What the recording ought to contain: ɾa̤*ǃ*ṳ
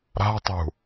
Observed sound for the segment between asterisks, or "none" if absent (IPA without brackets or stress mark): tˤ